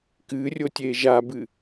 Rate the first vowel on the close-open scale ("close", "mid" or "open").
close